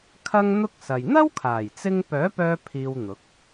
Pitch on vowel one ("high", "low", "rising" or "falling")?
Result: high